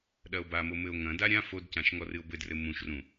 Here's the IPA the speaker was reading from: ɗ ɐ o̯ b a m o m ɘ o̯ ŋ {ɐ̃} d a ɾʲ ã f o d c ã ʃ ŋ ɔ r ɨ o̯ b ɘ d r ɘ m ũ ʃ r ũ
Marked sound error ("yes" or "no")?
no